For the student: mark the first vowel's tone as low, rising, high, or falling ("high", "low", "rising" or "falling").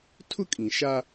high